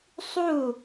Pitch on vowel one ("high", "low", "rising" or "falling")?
falling